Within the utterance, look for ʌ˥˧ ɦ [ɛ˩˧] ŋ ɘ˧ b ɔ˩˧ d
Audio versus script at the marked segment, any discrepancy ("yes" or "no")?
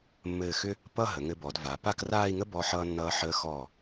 yes